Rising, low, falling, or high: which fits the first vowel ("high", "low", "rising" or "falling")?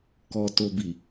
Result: low